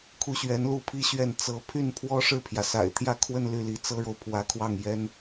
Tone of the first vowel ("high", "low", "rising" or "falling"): falling